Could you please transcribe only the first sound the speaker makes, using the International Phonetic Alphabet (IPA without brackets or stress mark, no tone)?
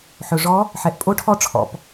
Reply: ħ